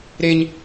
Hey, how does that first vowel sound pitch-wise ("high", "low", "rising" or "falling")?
high